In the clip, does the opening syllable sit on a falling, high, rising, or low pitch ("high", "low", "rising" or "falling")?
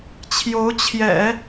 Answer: rising